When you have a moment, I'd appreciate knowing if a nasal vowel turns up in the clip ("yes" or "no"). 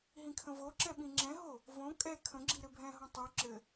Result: yes